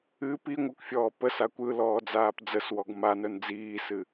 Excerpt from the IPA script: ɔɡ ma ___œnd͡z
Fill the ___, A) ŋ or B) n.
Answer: B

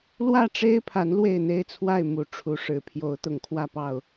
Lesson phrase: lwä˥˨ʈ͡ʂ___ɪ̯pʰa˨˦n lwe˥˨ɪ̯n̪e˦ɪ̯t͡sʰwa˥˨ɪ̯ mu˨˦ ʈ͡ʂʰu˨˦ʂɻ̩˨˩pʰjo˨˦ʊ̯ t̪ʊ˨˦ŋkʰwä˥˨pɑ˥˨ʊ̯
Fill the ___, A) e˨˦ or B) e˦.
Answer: B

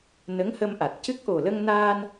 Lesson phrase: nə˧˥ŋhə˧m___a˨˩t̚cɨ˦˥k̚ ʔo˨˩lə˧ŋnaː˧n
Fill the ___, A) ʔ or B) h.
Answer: A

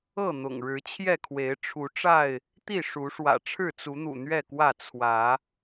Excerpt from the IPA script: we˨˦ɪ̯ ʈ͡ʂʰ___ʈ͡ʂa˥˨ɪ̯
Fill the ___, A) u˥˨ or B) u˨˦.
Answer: B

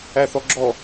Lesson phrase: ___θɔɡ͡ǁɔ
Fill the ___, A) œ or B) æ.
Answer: B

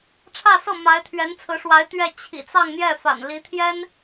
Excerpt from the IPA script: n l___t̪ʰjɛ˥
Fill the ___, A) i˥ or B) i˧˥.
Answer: B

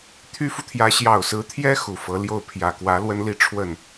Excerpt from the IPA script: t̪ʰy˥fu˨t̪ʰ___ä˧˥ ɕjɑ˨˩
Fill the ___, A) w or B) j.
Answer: B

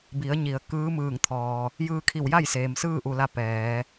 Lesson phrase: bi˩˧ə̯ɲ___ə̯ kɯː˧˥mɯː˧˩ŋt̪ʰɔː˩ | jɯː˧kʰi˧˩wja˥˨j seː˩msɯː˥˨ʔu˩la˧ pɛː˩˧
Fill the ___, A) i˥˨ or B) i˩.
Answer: B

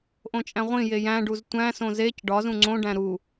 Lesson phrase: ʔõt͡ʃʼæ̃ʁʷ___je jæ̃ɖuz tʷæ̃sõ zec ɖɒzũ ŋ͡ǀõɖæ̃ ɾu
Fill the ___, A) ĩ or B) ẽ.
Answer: A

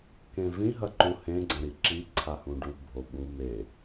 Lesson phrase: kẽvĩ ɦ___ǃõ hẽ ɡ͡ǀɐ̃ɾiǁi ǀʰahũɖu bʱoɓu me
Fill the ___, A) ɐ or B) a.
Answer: A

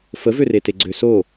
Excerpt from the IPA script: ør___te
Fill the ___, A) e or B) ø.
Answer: A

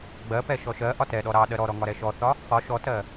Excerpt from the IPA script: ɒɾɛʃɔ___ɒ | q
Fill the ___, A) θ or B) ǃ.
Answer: A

